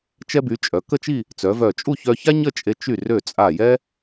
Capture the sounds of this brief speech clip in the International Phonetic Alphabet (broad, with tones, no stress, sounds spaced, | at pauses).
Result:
t͡ʃ ɛ˧ b y˩˧ t͡ʃʼ œ˩˧ k ə˥˧ t͡ʃ i˥˧ | t͡s œ˩˧ v œ˧˩ t͡ʃʼ u˥˧ ç œ˧ ç a˥ ɲ ə˥˧ t͡ʃʼ e˧ t͡ʃ y˧˩ r ø˧˩ t͡sʼ a˧˩ j ɛ˥